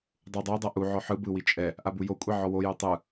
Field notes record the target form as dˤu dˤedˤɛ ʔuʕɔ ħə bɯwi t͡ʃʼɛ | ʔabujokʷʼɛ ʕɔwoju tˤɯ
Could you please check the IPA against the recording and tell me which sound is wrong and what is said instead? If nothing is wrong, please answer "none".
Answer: ə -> ɯ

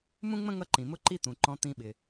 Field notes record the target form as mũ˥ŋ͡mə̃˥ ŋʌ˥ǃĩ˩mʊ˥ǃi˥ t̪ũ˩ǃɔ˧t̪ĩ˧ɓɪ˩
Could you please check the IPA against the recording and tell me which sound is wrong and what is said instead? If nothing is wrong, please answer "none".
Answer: ɔ˧ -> ɔ̃˧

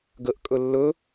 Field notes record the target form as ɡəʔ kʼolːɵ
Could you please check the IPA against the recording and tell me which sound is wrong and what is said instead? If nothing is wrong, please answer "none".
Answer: o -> ɵ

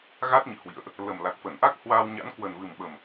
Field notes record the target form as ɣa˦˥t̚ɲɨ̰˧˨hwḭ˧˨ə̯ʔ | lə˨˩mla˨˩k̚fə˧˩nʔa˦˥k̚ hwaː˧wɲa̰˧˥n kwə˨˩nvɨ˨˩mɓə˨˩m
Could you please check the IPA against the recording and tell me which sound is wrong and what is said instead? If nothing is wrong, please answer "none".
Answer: none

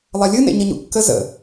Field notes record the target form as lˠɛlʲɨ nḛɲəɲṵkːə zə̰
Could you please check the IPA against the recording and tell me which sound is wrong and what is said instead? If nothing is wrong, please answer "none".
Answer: none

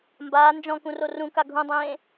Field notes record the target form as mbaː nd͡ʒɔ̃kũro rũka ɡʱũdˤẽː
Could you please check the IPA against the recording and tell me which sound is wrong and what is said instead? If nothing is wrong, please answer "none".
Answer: none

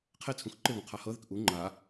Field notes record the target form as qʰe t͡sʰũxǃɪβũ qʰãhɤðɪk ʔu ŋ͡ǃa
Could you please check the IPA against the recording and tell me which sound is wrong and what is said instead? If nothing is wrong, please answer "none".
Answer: ã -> a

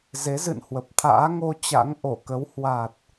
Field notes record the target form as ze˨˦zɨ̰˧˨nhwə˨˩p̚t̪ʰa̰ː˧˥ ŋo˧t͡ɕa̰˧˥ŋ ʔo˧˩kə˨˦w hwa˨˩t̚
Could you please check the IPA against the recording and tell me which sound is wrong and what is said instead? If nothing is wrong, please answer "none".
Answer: none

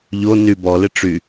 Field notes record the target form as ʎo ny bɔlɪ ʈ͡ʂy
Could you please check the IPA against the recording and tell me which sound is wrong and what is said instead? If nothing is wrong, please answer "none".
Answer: none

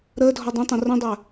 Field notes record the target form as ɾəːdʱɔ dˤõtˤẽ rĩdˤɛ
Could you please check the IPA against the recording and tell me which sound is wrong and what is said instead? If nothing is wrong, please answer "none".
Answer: none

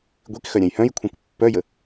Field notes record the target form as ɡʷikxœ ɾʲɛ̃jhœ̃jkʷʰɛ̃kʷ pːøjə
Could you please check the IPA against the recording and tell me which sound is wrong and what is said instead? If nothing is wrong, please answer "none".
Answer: ø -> œ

